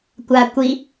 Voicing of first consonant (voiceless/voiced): voiceless